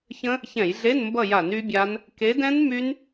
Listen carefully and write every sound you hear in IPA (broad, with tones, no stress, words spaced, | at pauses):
çə̃˦˥ | çɛ̃˧˩˧jɮe˧˥˧nmbʌ˦˨ja˧˩˧n y˦˥bʲa˦˥n | ke˨˦dɛ̃˦˥n my˦˥n